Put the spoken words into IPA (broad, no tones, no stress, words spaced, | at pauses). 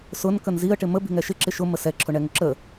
sʊn kənziə̯ ʈɪmə bi̤ŋɛʃɪ ǁɪʃʊ məsɛ ǁʰʊɳɛŋʊǁə